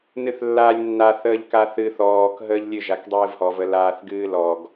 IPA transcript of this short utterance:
nɨθlːaːlʲnːa θəːʎkaθɨ θɔːk ɦəːʎlʲɨ ʒakdˤɨːvhɔv əlaːθɡɨːlɔɡ

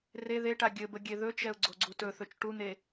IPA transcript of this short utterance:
re ðeʈa ɡʲɘbə ɡʲeðɵt͡ʃɛʊ̯ ɡ͡ǀoɡ͡ǀutɵθɵt͡ʃ ʈun̪e

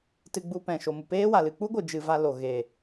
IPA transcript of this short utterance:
tɨ˧ɡ͡bu˧pɛ̃˨ ʃo˨mu˨peː˦wa˨ lɨ˨k͡pu˦ɡʷɨ˨ d͡ʒɨ˨ va˧lo˨ ɣe˨

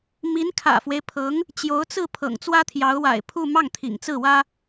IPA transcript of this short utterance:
mi˧˥nkʰä̰˨˩fwe˦ɪ̯pʰɤ˧˥ŋ | t͡ɕjo˧˥ʊ̯t͡sɹ̩˥˩ pʰɤ̰˨˩ŋt͡swä˥t̪ʰjɑ˧˥ʊ̯ wa̰˨˩ɪ̯pʰu˥˧ mɑ˥˩ŋt̪ʰḭ˨˩ŋt͡sɹ̩˥˩wä˥

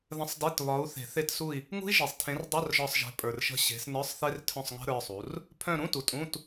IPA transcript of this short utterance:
ðə̃˧˥˧sˤde˧˥˧t βɒ˨˥u̯ θe̤˨˩˦θe˦˨tsu˦˨i̯ | ŋṳ˦˥i̯ʒe˨sˤtʰẽ˨˥rdˤœ˧˥˧r ʒɒ˦˨sˤʒe̤˨˥pʼə˞˨rʃə̤˦˨ ɕe̤˨˥s nə˞˧˥˧sˤθe˦˥rtʰœ̃˦˨sˤŋə̤˦˥ ɾə˞˧˥˧sˤu˨˥r | pʰœ̃˦˨ɾũ˧˥˧ tu˨tʼũ˧˥˧t

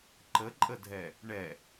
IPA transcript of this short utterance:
ǃəǃʼədʱɛ | ɳɛ

